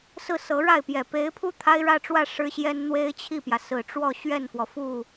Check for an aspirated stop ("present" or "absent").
present